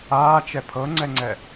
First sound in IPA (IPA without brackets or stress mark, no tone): aː